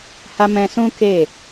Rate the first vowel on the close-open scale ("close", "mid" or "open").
open